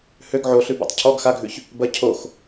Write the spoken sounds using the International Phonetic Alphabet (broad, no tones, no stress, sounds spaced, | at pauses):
h ø ɡ ʕ o ɬ ʉ b a̰ tˤ cʰ ɔ ɡ x a ɡʱ ʉ ç | b ɐ cʰ o x